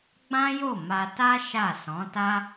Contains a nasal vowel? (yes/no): yes